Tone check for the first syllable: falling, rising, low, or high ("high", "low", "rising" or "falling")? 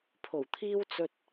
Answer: low